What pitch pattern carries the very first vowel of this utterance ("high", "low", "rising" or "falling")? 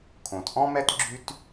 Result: low